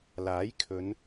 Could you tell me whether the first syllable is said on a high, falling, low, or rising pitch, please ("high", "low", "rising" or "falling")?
rising